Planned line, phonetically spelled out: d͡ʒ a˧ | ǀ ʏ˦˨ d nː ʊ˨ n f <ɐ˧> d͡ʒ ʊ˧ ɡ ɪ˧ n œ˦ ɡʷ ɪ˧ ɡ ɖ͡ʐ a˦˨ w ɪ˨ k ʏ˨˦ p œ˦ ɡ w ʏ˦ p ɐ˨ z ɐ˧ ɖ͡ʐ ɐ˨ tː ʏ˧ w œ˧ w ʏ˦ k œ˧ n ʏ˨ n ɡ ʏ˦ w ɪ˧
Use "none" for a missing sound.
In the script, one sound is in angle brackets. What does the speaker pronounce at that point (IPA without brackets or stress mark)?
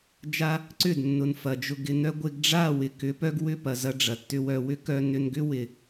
ɐ˨